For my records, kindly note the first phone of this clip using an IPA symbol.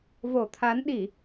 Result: v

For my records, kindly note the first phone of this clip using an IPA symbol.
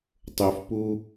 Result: tˤ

